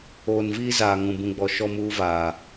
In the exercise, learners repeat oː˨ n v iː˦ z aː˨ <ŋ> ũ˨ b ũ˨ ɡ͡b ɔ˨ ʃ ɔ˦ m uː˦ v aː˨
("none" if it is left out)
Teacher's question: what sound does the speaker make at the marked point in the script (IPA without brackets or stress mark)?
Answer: ŋ